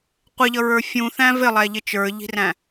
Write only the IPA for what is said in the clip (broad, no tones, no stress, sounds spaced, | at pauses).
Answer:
qʷ ɪ ʎ ʌ ɹ ə˞ fʲ ũ θ æ̃ v ɪ lˠ æ ʎ ɪ t͡ʃ ə˞ ʎ i̤ r æ̃